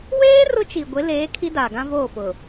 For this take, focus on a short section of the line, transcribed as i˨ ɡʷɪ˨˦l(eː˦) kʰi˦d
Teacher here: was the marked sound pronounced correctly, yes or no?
no